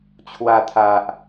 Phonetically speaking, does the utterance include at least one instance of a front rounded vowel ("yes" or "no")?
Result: no